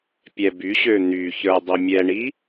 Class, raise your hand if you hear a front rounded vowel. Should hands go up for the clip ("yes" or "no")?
yes